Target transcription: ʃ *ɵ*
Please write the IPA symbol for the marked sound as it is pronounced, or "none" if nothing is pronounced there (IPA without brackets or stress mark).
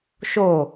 o